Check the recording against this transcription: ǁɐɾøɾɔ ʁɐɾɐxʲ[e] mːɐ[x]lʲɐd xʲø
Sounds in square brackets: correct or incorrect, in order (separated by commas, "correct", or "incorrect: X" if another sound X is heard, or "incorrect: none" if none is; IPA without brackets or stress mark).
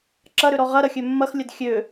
incorrect: ø, correct